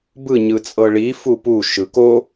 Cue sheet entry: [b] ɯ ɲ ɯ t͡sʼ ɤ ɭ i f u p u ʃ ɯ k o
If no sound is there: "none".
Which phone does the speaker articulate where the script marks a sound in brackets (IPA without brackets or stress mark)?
b